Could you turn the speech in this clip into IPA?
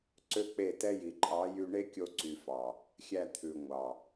ǀ ø˦ k͡p e˦˨ t ɛ˦ j i˨ ǃʼ ɑ˨˦ j y˧ ɳ e˦ kʲ o˧ ǀ y˨ f ɑ˨ | xʲ æ˧ t̪ʰ ʉ˨ ŋʷ ɑ˨

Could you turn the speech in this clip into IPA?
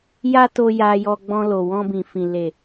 j a˦ t o˧ j a˧ j ɔ˧ ɡ͡b ɔ̃˧ l o˨ w ɔ̃˧ b ĩ˨ f ĩ˨ l e˨

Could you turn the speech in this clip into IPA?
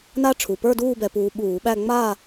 n a˦˥ ʈ͡ʂʰ u˩˧˩ p ə˞˥˧ d uː˥˧ b ɛ˧ p uː˧ ɓ uː˧˩˧ ɓ æ˥˧ ŋ͡m a˥˧

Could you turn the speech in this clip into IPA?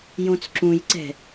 j õ t͡s ǁ ũ j ǀ ɛ̤

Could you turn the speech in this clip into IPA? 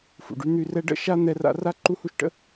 f ṵ˨ ɖ y˦ n̪ y˧ r ɛ˦ ɖ ə̰˦ ʃ a˦ n̪ ɛ˧ r a̰˧ r a˦ ǃ u˦ h u˦ ʃ ʈ ə̰˦

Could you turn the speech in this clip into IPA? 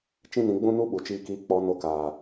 t͡ʃ ĩ˦ n ĩ˧ ɡ͡b ũ˦ n u˦ ɓ u˨ t͡ʃ iː˧ k iː˧ k͡p ɔ˧ n o˧ k aː˨

